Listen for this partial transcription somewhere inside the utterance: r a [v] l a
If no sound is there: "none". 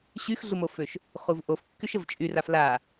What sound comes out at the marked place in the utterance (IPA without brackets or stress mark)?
f